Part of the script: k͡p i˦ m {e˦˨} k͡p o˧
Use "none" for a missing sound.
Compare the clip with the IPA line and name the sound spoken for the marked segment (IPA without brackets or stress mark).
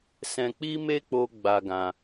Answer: e˦